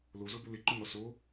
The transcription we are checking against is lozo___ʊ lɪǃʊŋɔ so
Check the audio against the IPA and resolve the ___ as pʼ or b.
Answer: b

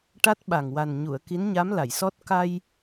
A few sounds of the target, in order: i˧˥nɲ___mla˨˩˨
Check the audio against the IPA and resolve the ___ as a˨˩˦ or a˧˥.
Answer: a˧˥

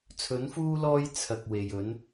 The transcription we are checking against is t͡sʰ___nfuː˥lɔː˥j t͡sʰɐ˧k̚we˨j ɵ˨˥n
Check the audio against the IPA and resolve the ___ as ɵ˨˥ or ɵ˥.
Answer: ɵ˨˥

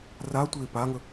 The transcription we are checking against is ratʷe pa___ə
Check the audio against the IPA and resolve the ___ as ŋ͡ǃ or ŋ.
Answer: ŋ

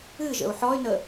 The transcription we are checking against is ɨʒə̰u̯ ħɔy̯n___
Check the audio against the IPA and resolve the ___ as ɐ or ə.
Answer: ə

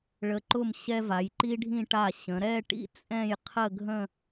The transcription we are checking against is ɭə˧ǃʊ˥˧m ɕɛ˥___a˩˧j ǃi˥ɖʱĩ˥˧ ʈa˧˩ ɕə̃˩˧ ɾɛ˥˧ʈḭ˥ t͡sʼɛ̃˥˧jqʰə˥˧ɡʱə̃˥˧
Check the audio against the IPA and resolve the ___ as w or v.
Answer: v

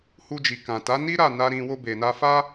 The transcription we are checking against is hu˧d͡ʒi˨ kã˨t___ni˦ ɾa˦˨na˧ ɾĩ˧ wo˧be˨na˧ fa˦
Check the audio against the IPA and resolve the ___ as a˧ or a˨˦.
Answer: a˨˦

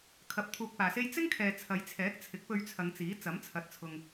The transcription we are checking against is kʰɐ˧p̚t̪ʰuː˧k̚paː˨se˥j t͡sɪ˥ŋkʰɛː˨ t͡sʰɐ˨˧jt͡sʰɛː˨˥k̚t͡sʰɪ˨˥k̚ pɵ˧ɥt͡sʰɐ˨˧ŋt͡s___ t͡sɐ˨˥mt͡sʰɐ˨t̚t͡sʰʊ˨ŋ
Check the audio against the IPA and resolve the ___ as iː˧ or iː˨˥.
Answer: iː˨˥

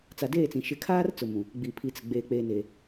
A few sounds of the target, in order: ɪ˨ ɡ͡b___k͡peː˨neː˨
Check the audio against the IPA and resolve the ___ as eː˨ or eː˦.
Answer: eː˨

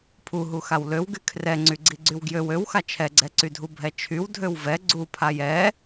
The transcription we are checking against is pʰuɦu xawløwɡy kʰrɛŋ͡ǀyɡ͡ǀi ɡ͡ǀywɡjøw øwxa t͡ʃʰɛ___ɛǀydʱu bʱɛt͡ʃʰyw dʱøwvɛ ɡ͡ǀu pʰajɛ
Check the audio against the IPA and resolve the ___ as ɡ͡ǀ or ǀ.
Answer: ɡ͡ǀ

